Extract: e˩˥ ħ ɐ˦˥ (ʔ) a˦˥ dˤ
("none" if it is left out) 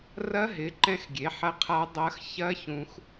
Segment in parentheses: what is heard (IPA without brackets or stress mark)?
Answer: qʰ